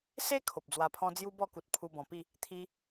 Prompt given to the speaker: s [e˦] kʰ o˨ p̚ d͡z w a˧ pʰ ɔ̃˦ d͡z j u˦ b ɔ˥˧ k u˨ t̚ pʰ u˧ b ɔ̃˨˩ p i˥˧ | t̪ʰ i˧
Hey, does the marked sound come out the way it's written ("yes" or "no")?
yes